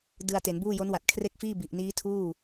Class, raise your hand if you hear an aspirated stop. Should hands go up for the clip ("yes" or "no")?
yes